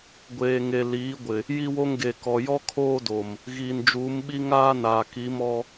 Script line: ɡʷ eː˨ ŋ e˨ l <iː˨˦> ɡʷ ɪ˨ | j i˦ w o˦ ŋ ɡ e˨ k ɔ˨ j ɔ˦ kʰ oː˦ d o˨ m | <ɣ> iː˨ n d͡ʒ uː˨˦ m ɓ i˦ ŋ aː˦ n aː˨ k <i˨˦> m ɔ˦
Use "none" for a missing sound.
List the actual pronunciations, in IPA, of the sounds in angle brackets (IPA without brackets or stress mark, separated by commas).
iː˨˦, ɣ, i˨˦